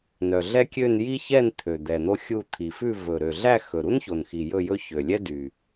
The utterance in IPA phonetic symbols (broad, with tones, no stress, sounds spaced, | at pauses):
n œ˨˩ ɮ ɛ˥ kʲ ø˥˧ n j i˥ ç ɛ˥˧ n t̪ʰ ø˨˩ d̪ ɛ˨˩ n̪ o˥ xʲ u˥˧ t̪ʰ i˨˩ f ʉ˥˧ v ɵ˨˩ ɾ ø˨˩ ɮ æ˥˧ x ɵ˨˩ ɾ u˥ n ç o˨˩ n x i˨˩ j ɵ˥˧ j ɵ˥ ç ø˨˩ lʲ ɛ˥ d y˨˩